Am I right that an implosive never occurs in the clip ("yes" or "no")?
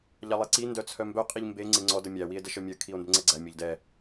yes